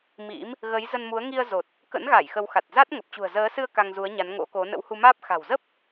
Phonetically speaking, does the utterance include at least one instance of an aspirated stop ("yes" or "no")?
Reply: no